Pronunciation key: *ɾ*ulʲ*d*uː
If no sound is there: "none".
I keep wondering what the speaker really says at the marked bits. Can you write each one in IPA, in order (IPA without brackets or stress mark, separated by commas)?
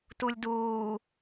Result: t, d